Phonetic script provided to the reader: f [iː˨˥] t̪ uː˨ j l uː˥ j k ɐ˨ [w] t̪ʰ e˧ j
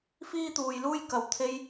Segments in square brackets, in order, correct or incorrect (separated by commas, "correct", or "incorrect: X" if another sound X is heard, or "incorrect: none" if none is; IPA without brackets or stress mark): incorrect: iː˥, correct